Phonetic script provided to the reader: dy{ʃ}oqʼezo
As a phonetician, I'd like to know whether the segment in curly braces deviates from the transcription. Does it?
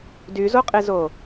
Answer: yes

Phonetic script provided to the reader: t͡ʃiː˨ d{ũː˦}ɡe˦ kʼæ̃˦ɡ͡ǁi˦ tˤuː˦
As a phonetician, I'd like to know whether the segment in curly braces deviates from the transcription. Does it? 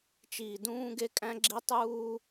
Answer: no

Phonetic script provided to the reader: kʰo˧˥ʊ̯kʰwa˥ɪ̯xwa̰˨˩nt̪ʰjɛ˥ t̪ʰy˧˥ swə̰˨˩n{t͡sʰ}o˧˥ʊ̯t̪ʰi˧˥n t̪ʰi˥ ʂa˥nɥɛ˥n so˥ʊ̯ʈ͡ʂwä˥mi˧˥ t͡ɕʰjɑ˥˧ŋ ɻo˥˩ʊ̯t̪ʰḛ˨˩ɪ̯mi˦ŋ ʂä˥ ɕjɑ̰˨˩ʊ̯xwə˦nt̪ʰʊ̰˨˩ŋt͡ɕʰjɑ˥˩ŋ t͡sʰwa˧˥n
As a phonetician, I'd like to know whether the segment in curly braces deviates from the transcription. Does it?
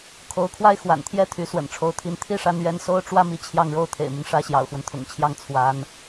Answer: yes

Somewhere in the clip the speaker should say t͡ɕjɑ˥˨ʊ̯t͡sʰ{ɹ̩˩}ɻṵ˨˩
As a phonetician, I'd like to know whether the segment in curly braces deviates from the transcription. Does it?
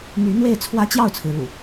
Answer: no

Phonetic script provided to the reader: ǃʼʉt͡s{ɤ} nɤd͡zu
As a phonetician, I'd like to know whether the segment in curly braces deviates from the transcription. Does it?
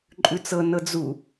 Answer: no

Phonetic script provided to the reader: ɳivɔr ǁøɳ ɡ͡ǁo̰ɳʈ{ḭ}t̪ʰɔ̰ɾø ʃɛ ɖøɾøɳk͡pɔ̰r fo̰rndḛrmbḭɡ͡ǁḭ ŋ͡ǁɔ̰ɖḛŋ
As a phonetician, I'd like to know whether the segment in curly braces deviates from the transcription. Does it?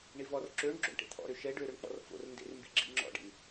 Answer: yes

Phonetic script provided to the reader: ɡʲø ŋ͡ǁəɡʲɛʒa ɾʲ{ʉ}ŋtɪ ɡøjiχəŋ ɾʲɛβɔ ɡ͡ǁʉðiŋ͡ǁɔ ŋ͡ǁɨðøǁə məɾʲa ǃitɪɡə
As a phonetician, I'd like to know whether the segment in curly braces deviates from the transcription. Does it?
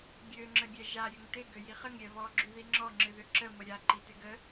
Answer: yes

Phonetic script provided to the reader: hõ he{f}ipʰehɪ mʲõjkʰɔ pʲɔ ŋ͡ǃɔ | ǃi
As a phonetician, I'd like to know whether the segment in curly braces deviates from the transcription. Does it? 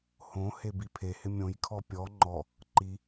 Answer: yes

